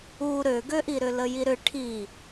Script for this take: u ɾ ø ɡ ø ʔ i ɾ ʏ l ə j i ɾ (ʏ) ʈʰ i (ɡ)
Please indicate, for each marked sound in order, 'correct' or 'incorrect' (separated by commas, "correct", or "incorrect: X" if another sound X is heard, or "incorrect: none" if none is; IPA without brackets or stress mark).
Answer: correct, incorrect: none